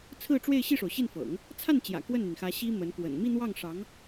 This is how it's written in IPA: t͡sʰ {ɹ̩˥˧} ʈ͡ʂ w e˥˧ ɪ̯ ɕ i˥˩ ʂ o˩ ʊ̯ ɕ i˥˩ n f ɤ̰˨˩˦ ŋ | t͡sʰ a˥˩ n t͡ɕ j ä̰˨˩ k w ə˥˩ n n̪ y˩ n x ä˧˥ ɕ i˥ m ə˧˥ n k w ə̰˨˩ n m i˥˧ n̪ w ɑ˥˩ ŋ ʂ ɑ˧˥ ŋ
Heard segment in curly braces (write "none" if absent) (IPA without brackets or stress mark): ɹ̩˥˧